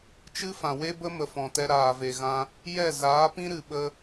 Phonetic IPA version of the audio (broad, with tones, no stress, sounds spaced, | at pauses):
t͡ʃ ɨ˦ f ã˨ w e˦ b ə˦ m ə˨ f ɔ̃˨ t ɛ˧ ɾ aː˨ v e˨ ɣ ã˧ | j ɛ˦˨ z aː˨˦ p ĩ˦ ɾ ɨ˨ ɓ ə˧